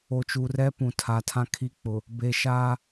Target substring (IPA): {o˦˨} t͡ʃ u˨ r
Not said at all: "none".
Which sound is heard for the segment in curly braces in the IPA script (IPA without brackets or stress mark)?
o˨